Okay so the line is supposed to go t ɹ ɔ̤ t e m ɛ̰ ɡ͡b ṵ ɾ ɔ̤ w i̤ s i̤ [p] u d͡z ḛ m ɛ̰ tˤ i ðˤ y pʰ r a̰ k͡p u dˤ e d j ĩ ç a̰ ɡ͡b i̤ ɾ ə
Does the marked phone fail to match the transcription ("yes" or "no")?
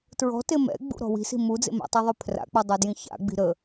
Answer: yes